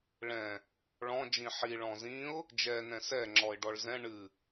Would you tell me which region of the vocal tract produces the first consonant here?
retroflex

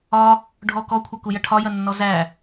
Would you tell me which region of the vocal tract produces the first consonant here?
retroflex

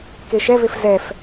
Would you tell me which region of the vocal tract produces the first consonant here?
velum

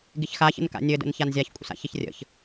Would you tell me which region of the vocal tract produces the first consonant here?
velum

